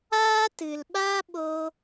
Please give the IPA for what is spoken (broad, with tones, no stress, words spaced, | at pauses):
aː˦tɨ˨lɓa˦ ɓo˧